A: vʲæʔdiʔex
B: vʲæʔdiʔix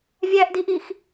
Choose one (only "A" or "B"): B